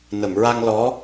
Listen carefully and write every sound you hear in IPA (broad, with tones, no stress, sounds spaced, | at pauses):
n ə˨˩˨ m ɹ a˧ ŋ l ɔ˧˥